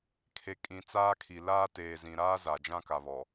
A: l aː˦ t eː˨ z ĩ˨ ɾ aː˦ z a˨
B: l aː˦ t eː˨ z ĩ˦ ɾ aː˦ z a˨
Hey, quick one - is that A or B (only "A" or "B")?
A